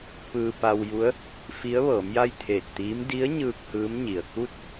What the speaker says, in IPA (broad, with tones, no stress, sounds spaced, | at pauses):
p ɯː˧ p a˧ w j u˧˥ ə̯ | f i˧˥ ə̯ ʋ ɤː˩˧ m j a˥˨ j t̪ʰ eː˧˩ t̚ t̪ iː˧˥ m d i˧˥ ə̯ ɲ ɯː˧ k̚ h ɯː˧˥ m ɲ i˩ ə̯ k u˥˨ t̚